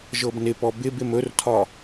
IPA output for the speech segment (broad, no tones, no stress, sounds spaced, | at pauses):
ʒ ɤ b n ɪ p ɔ b ɪ b ɪ m ɵ r tʰ ɒ